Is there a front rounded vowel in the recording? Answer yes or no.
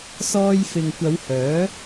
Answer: yes